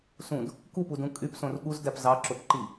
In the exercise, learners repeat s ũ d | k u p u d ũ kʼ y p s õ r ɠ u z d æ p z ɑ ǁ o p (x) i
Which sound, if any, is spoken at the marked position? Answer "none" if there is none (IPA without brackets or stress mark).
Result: ǃ